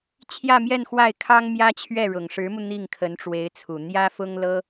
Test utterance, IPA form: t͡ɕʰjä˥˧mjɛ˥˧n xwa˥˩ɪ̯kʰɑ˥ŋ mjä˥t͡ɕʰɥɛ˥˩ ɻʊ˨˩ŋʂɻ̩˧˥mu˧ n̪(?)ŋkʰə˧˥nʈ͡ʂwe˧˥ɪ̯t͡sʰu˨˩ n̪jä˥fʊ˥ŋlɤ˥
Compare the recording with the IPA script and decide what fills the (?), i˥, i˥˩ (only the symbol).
i˥˩